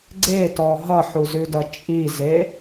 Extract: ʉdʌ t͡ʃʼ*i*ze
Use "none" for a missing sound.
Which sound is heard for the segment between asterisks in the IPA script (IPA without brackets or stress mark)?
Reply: i